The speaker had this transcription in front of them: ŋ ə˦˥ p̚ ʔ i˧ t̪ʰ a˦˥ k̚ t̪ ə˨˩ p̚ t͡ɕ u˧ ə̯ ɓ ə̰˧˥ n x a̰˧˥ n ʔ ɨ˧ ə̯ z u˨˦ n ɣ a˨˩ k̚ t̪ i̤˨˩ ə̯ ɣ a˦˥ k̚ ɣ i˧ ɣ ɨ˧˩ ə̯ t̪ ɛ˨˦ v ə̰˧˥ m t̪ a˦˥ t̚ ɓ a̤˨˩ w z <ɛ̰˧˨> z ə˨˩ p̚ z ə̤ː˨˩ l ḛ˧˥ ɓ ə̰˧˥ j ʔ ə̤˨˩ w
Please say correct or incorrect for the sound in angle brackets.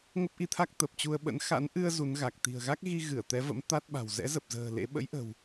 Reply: incorrect